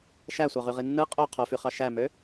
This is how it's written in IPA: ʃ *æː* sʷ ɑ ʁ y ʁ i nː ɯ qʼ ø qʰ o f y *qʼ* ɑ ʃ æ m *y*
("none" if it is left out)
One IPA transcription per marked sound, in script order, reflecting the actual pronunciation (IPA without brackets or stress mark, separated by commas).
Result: æ, χ, ø